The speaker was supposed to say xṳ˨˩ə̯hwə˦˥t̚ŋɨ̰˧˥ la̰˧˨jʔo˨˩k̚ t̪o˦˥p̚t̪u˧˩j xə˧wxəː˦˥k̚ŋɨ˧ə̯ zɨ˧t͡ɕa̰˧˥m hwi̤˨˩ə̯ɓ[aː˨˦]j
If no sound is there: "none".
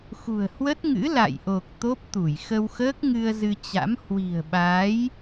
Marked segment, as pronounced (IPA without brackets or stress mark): aː˨˦